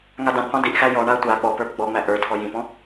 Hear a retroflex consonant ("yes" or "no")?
yes